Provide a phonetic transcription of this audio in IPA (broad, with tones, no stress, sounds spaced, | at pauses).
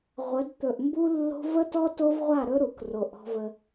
ʁʷ ə˨˦ d t̪ ɵ˨ ʔ m b u˦ lː o̤˦ v ə˦ t ɔ˦ t o˦ v ʁʷ a˦˨ ɾ ɵ˦ ɾ u˨ k r o˨ ʔ ɔ̤˦ v ə˦